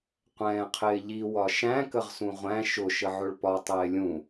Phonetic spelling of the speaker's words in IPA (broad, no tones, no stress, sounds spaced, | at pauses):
qʷ ɛ̃ː qʰ ɪː ʎ i w ɒ ʃ æ̃ k ə ʁ s ũ ʁʷ æ̃ ʃ ʊ ʃ ə ʕ ʊ ɭ p ɒ tˤ ɪː lʲ ũ